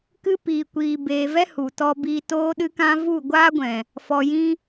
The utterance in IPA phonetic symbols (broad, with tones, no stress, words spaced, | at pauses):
kɨ˦ piː˨ kʷiː˧beː˧ vɛ˦hu˨tɔ˧ biː˧toː˦ɗɨ˦kã˦ vu˦˨ɡʷaː˦ɡʷɛ̃˨ | fɔ˨jĩ˧